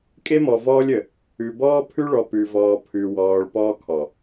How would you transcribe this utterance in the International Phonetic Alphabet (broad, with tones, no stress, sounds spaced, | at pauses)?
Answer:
kʼ e˦ m ɔ˨ v ɔː˦ lʲ ə˨ | ʉ˨ b ɔː˦ pʰ ʉ˦ ɭ ɔ˨ p ʉ˨ v ɔː˨ pʰ ʉ˨ w ɔː˨ ɭ p ɔː˦ kʰ ɔ˨